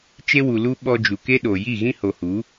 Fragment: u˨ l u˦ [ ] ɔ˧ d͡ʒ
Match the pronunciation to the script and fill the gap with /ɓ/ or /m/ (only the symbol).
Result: ɓ